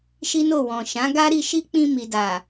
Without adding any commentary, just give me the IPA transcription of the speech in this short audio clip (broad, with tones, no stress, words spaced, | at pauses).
ʃi˦no˦˨wɔ̃˨ ʃã˨˦ɡa˦ɾi˧ʃi˦ k͡pĩ˧mi˨da˨